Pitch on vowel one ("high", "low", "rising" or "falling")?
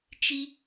high